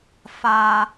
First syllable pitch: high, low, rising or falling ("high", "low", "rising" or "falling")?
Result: low